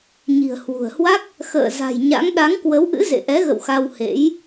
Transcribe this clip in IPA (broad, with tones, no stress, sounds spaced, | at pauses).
ɲ i̤˨˩ ə̯ h w ṳ˨˩ ə̯ h w a˦˥ k̚ | x ə̰ː˧˨ z a̤˨˩ j ɲ a̰˧˥ ŋ ɗ a˨˦ ŋ k w ə˨˦ w ʔ ɨ̰˧˥ z ḛ˧˨ ʔ ɛ˨˦ ɣ ə̰˧˨ w x a˧ w h ḛ˧˥ j